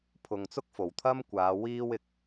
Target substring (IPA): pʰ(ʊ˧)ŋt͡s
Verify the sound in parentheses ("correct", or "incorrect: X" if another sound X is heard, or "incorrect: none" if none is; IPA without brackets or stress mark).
incorrect: ʊ˨